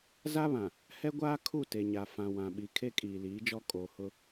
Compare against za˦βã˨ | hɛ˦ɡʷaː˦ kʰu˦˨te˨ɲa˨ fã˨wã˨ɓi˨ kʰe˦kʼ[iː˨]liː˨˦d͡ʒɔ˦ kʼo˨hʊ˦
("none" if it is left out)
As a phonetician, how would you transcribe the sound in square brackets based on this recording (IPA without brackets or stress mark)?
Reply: iː˨